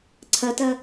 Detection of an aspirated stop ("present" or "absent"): present